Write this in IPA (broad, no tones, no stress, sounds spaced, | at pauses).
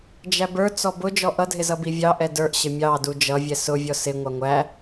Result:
d͡ʒ æ b ə˞ t͡s ɔ b ʊ d͡ʒ ɔ ʔ ʌ dʱ ɪ z ʌ b i vʲ ɑ ʔ ɛ d ə˞ ʔ ɕ ɪ mʲ ɑ d u d͡ʒ ʌ vʲ ɛ s ʊ vʲ ɔ s ɪ ŋʷ ɑ ŋʷ æ